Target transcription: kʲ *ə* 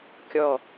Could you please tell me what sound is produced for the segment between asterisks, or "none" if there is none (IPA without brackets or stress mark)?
ɔ